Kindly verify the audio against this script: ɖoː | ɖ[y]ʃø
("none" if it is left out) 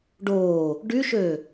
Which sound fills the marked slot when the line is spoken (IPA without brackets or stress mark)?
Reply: y